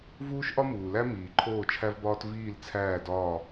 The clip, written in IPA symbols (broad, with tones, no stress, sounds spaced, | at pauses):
v uː˦ ʃ ʔ ɒ˦ m uː˨ l æ˦ m iː˨ ǃʰ oː˦˨ t͡ʃʰ æ˦ v b ɒː˦ t v iː˦˨ l t͡sʰ æː˦˨ d ɒː˦˨